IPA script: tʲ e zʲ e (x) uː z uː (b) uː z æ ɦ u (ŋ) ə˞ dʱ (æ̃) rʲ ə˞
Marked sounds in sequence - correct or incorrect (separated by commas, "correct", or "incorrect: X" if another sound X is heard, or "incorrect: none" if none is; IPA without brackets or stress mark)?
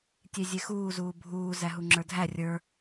correct, incorrect: bʱ, incorrect: ŋ͡ǁ, incorrect: æ